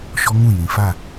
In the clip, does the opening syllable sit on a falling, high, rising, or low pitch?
high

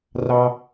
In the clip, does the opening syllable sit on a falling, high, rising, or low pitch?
high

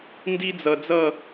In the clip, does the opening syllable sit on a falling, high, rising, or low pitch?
high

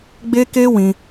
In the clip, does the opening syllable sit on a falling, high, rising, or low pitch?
high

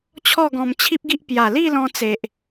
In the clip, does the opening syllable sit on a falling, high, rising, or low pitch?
falling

